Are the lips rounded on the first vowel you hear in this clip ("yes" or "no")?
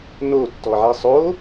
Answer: yes